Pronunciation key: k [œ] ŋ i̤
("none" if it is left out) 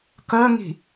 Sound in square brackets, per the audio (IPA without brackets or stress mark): œ